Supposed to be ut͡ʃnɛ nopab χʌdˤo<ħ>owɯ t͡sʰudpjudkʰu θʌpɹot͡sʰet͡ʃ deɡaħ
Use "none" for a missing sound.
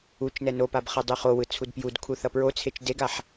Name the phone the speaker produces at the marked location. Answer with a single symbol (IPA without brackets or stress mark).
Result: χ